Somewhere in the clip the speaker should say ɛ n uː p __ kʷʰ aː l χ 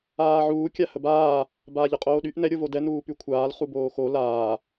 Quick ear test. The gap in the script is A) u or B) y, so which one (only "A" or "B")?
B